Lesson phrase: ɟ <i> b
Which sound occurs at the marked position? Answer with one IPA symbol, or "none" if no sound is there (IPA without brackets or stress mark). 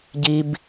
i